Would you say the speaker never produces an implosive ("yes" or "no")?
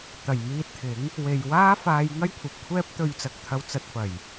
yes